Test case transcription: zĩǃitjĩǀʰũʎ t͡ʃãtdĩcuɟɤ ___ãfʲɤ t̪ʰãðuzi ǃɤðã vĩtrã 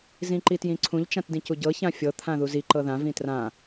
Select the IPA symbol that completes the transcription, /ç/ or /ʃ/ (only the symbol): ç